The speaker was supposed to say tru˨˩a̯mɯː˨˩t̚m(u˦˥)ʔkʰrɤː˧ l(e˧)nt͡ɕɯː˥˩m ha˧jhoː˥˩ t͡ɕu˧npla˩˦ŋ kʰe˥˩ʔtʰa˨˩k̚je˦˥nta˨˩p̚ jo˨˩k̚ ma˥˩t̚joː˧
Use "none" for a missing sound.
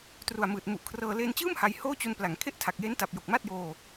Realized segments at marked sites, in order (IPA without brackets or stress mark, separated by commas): u˨˩, eː˧